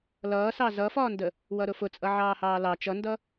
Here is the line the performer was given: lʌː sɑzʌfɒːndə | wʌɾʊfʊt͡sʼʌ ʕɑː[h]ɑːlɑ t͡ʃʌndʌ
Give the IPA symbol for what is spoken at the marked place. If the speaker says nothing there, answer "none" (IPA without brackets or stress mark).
h